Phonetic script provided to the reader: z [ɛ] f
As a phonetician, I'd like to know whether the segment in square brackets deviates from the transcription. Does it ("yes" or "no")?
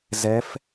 no